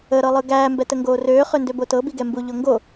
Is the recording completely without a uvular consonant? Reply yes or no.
no